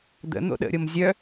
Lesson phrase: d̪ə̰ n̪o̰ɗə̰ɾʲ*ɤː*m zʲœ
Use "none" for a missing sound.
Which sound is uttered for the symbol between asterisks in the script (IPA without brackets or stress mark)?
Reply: ɤ